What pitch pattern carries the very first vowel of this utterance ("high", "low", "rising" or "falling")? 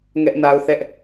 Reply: high